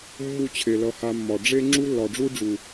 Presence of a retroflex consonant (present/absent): present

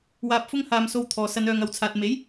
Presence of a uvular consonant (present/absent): absent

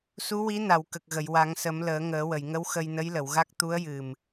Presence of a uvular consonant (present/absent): absent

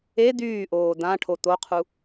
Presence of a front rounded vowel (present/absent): present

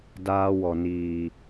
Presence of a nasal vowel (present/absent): absent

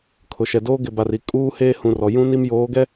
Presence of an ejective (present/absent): present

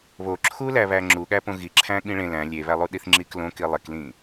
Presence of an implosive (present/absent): present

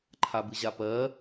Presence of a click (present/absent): present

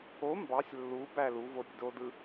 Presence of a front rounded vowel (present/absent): absent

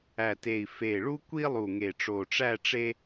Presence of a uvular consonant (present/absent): absent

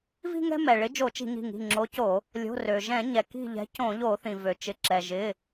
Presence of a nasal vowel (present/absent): present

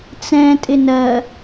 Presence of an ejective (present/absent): present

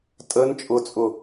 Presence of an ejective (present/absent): present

